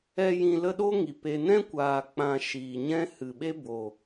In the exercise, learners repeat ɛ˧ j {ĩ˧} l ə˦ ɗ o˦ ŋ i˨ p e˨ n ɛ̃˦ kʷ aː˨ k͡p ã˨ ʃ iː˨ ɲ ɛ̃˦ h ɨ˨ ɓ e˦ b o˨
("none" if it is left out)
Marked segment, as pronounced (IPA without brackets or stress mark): ĩ˧